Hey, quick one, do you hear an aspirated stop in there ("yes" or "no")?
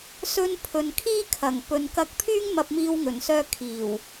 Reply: yes